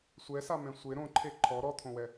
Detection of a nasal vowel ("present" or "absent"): present